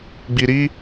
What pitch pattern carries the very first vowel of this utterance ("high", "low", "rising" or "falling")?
low